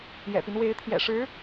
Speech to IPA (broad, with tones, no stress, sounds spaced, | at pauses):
j ɛ̰˨˩ p i˦ n w e˧˥ ɪ̯ t̪ʰ j ɛ̰˨˩ ʂ ɻ̩˧˥